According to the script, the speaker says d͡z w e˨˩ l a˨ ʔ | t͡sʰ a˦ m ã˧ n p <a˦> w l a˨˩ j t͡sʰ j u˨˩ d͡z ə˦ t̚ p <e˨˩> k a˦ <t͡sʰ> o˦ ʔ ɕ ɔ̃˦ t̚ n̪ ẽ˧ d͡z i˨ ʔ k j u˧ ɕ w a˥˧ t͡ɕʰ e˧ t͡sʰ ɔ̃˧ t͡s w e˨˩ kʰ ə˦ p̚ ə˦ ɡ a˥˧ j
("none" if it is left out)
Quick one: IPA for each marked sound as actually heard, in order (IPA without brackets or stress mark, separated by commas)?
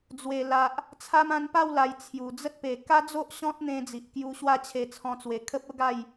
a˥˧, e˨˩, d͡z